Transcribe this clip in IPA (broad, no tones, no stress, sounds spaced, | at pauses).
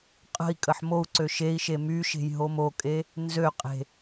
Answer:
qʼ ə̤ i̯ kʼ ə ħ m o u̯ ǀ ø ʃ e i̯ ʃ e m y ʃ e̤ j ɦ o m o kʼ e | n z ø qʼ e̤